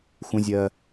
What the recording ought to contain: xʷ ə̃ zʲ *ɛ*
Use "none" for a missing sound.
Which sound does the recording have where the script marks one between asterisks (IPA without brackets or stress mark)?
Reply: ɜ